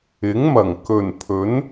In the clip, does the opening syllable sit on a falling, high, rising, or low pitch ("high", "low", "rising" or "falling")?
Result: rising